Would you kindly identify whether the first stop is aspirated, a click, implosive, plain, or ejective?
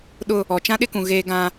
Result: implosive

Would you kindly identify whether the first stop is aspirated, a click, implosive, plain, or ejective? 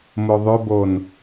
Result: plain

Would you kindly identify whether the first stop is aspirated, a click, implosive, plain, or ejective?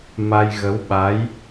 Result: implosive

